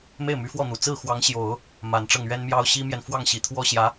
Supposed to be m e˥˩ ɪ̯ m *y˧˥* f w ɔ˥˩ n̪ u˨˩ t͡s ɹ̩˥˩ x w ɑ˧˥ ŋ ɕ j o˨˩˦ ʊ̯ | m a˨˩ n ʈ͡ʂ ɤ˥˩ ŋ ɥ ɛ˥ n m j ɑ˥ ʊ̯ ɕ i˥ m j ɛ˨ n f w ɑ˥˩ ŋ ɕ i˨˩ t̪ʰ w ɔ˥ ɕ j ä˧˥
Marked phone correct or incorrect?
correct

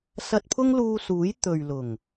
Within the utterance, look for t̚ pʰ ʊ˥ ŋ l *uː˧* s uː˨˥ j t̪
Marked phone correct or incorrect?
correct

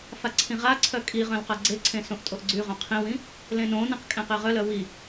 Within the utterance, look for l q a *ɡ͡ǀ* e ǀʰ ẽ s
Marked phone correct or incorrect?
correct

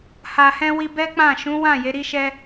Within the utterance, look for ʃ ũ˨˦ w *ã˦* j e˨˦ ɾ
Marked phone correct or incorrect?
incorrect: ã˦˨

